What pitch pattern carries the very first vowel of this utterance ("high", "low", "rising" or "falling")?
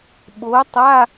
rising